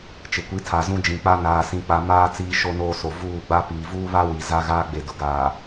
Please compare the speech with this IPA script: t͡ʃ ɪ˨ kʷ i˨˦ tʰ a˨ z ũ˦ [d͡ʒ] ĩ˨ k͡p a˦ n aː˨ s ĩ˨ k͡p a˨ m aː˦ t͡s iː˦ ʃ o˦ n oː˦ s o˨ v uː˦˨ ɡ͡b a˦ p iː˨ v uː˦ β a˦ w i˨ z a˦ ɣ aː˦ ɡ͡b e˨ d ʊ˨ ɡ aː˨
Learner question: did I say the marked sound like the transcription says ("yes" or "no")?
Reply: yes